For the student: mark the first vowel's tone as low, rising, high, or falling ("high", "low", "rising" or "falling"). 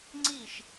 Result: falling